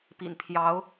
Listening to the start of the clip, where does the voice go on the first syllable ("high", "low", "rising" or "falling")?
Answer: low